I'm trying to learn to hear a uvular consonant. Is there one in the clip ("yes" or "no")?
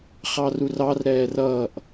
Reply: yes